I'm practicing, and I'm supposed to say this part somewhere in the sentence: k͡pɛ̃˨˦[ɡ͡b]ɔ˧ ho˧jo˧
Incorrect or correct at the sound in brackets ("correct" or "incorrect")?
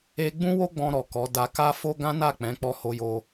incorrect